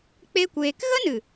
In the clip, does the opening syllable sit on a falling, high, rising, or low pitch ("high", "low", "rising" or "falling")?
high